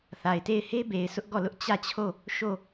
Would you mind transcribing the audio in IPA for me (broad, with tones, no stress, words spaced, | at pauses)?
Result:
θa˨ɪ̯te˦˨ɪ̯ he˦be˨ɪ̯ sʰʊ˦ʔɡɔ˦˨lʊ˦ʔ t͡ɕä˦˨t͡ɕʰo˦˨ | ʃo˦˨